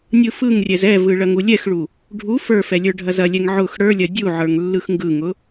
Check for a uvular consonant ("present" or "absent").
absent